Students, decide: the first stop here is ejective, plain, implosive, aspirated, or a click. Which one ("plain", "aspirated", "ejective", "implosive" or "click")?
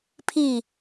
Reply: aspirated